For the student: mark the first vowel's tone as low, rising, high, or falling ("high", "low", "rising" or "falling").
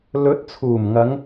rising